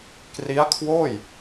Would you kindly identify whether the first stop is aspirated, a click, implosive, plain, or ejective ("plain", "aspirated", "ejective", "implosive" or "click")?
plain